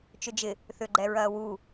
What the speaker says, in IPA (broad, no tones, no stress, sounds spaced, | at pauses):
t͡ʃ ʏ d͡ʒ ɪ | θ ʏ ɡ͡ǃ ɛ ɹ ɐː w u